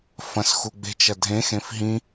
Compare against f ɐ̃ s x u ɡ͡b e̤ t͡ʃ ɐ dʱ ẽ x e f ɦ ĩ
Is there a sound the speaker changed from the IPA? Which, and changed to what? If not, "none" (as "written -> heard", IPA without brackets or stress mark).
e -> ẽ